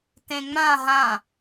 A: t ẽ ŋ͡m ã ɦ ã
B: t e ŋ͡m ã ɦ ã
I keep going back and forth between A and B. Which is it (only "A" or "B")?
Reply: A